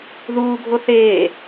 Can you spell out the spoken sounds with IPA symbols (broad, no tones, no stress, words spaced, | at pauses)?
ðuːɡʱo θeː